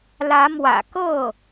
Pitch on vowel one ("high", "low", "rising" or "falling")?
rising